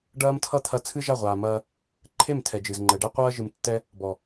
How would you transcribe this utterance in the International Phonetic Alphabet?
ɖ ɐː˧ m tʰ ʌ˧ t̪ʰ ɐ˧ t͡sʰ ɨ˦ ʒ a˦˨ ʁʷ aː˨ m ɐː˧ | ǃʰ e˦˨ m tʰ ɛ˨ d͡ʒ ɨ˨ z ŋ͡ǃ ɛ˨ ɖ ɛ˦ qʷ ɐː˦ ʒ ɨ˧ m tː ɛ˦ | b ɔ˨

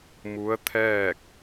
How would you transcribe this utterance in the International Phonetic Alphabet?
m u˧˥ ə̯ t̪ʰ ɛː˥˨ k̚

